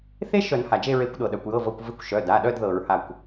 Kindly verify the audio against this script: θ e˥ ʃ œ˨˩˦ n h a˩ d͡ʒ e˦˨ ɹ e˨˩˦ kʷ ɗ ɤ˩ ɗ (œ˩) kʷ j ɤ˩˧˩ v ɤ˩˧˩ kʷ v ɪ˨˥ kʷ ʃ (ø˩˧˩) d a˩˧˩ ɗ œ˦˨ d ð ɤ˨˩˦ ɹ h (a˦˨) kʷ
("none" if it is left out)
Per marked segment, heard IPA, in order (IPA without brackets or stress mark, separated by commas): œ˩, œ˩˧˩, a˦˨